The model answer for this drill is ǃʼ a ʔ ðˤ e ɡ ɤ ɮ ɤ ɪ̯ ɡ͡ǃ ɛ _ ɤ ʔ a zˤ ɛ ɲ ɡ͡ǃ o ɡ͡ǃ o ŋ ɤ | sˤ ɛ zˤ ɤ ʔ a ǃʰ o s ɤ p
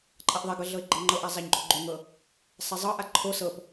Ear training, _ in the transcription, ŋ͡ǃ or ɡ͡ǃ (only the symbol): ŋ͡ǃ